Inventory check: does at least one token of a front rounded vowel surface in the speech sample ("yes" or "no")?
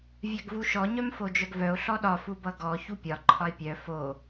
yes